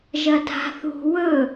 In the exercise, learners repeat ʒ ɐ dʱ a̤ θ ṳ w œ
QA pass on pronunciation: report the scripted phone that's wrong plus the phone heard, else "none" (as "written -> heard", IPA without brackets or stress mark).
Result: œ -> ɵ